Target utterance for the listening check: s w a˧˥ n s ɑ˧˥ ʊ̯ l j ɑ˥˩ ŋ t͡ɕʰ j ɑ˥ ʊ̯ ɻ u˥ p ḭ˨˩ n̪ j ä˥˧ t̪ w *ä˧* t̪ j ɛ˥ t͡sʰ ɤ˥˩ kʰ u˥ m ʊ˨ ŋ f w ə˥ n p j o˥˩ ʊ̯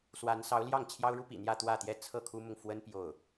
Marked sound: incorrect: ä˥˩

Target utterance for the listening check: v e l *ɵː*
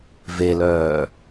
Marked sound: incorrect: œː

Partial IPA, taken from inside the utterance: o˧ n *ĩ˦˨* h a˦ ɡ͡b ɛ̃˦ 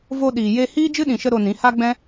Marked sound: incorrect: ĩ˨˦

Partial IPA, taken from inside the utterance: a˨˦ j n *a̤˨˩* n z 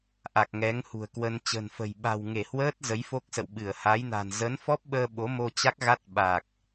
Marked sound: correct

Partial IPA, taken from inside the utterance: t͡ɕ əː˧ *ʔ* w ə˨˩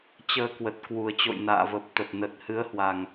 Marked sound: incorrect: k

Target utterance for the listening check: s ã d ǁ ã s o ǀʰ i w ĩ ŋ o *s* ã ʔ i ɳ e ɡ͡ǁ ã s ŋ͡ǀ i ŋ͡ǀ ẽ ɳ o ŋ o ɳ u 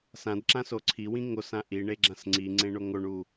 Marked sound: correct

